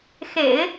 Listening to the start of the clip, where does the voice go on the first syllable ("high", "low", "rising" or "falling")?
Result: low